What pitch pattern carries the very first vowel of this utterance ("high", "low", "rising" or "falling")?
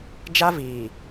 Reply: high